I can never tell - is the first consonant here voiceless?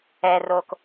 no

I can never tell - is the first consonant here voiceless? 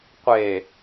yes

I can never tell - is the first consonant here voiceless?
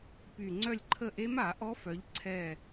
yes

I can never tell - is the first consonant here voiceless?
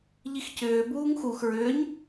no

